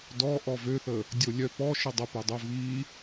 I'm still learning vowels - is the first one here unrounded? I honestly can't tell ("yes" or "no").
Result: no